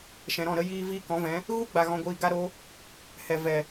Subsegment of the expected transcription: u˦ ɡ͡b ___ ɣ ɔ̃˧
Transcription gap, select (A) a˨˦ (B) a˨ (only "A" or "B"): B